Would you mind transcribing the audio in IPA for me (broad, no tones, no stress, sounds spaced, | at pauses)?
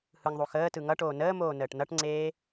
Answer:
h ɯ ŋ ðˤ o x əː t ɯ ŋ ʌ ʈ oː n əː m oː n əː ʈ n ʌ ʈ ŋ͡ǀ eː